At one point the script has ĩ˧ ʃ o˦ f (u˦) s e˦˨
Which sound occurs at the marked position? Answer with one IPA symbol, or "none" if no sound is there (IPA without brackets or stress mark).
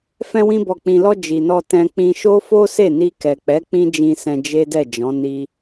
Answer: o˦